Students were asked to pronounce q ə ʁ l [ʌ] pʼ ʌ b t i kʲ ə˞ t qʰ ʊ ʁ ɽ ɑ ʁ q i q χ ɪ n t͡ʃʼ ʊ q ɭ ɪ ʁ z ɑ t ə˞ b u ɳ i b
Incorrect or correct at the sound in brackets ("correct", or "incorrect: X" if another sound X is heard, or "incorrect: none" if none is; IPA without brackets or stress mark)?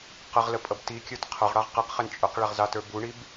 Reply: incorrect: ə